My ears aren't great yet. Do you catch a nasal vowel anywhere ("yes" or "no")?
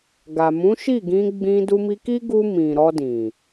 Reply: yes